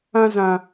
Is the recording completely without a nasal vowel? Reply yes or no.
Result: no